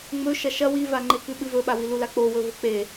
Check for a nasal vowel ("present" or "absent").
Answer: absent